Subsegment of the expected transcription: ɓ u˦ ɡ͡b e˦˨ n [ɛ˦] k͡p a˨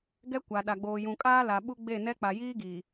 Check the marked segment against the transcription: correct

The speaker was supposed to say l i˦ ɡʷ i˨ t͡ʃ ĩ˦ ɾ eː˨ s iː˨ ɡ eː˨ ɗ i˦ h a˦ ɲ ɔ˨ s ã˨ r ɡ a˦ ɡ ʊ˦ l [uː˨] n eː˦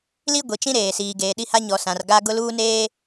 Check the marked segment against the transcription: incorrect: uː˦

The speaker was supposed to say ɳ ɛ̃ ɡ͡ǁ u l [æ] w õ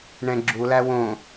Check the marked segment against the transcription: correct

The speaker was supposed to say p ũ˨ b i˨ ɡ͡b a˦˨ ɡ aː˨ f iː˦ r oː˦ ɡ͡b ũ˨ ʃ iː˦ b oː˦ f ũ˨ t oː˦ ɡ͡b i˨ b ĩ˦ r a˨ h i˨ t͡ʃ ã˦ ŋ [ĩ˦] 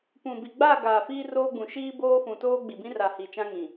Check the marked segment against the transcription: incorrect: ĩ˨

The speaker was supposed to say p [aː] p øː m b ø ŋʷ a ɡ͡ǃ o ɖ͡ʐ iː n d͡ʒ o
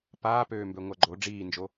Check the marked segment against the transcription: correct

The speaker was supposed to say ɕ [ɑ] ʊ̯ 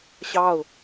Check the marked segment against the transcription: correct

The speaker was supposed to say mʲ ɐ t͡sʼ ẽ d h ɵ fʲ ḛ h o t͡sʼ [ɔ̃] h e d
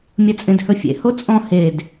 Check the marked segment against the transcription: correct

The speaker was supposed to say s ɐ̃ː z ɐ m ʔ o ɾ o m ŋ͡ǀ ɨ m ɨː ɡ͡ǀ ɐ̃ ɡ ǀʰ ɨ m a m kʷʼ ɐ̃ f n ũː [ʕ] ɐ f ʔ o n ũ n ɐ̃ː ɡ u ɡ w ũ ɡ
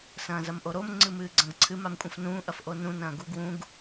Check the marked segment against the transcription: incorrect: ʔ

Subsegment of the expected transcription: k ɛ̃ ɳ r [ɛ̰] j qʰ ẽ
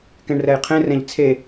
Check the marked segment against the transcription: incorrect: ɛ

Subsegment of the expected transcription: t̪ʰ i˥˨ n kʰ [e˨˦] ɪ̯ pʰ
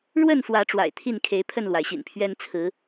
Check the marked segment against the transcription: correct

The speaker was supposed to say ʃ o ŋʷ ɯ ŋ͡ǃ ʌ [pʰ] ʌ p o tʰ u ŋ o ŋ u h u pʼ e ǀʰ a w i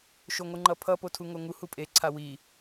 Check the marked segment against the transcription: correct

